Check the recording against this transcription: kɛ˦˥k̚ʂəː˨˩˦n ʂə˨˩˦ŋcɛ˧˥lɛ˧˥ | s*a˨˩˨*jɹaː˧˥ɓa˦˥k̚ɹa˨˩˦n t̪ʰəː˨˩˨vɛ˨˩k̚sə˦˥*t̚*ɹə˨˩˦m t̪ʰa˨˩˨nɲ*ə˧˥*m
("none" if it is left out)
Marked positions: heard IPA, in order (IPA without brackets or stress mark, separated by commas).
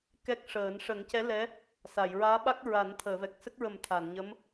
a˨˩˨, k̚, ə˧˥